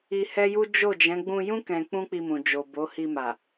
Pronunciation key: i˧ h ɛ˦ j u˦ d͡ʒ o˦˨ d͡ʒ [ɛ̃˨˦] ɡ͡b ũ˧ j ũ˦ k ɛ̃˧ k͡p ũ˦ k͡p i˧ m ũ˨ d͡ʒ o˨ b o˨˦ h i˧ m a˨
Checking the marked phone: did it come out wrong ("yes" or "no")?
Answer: no